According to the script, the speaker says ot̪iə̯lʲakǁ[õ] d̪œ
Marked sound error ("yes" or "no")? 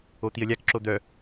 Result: yes